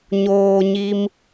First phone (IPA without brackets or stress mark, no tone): ɲ